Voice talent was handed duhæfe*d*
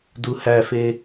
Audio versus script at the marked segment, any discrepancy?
yes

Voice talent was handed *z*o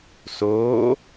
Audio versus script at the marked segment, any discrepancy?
yes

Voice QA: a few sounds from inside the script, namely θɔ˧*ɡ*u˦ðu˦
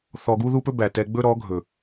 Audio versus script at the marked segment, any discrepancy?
no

